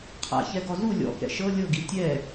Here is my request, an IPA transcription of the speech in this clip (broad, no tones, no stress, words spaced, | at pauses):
qʰa̰çɛɡɔ zu lʲɔ̰kɛ̰ ʃɤ lʲɤɡi tʲɛ